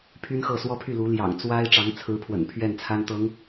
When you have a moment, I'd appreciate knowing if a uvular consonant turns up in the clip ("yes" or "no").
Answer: no